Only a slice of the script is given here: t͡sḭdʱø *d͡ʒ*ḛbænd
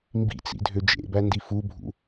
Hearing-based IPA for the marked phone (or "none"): d͡ʒ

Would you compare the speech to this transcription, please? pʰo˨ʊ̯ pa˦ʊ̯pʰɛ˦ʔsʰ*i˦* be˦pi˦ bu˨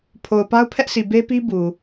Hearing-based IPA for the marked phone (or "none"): i˨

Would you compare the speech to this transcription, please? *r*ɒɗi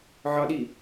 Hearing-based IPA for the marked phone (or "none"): ʕ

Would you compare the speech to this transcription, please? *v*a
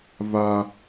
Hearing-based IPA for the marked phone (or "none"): v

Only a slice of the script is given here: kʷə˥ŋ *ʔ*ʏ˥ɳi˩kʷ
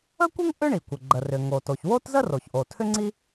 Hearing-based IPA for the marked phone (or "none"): ʔ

